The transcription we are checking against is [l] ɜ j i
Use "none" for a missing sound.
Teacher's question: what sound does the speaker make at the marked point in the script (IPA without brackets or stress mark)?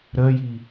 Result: ɾ